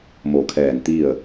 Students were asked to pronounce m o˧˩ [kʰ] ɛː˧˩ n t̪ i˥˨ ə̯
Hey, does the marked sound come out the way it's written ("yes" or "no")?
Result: yes